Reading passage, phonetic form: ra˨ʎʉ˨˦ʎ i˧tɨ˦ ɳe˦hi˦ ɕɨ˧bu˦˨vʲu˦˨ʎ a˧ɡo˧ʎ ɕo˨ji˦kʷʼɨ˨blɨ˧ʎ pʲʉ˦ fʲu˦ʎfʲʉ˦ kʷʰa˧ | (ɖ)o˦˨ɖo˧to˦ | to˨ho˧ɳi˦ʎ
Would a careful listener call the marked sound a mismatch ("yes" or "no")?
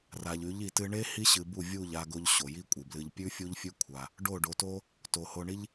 no